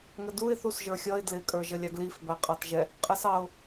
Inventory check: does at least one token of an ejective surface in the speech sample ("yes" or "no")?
yes